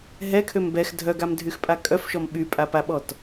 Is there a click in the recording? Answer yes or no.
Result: no